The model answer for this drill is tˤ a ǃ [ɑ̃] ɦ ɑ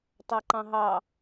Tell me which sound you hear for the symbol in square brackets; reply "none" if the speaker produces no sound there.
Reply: ɑ̃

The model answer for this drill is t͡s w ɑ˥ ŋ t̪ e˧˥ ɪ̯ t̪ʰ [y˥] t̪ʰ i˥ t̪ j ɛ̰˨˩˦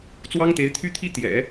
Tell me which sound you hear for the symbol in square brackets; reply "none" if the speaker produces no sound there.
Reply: y˥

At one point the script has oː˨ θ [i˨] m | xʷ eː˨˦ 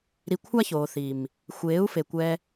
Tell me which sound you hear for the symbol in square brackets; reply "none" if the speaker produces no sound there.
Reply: i˨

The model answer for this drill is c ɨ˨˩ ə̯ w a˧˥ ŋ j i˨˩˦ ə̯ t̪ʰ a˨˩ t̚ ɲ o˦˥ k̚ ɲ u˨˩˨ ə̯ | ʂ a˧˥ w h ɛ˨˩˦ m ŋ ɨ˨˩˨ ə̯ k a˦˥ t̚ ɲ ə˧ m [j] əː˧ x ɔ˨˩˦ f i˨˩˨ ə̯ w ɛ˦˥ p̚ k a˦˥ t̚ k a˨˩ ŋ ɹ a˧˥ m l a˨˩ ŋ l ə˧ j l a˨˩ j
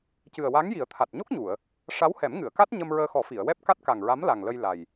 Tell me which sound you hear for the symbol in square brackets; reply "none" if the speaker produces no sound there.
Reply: ɹ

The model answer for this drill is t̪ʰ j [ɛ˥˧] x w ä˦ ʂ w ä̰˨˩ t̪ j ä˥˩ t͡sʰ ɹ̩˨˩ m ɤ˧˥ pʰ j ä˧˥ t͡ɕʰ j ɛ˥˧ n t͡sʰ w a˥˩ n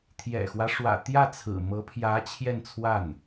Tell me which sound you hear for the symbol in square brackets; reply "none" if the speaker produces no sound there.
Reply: ɛ̰˨˩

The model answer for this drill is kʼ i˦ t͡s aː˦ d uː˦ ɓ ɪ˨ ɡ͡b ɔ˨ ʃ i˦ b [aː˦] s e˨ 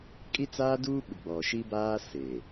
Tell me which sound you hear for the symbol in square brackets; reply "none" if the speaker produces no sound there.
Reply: aː˦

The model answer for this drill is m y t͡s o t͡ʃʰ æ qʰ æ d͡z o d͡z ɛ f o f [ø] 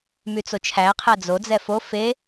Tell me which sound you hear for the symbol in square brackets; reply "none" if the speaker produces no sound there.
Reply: e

